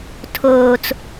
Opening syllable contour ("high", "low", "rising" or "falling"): low